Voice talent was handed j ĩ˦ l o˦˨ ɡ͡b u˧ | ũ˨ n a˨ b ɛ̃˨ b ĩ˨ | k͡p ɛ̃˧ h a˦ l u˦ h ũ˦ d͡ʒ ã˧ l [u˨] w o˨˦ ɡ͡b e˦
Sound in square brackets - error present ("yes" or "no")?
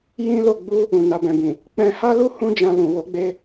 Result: yes